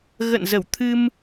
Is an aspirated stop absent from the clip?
no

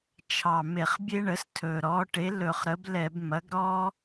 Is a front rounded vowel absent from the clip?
yes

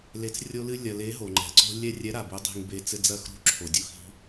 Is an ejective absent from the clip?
yes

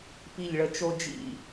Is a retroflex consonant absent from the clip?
no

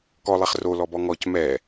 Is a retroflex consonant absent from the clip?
yes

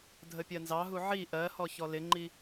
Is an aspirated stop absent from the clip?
yes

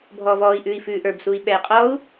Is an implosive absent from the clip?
no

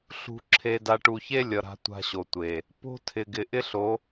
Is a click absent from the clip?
no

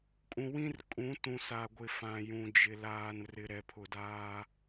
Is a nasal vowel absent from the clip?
no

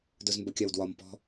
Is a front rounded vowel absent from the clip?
yes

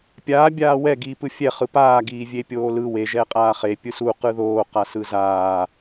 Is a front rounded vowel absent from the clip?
yes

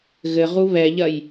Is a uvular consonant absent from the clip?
no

